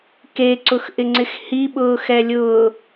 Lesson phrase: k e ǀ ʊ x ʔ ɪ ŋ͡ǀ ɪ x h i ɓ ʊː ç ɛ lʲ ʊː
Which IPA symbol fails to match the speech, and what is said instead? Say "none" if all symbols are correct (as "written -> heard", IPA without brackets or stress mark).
ç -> x